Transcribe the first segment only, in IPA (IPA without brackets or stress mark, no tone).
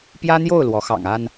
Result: p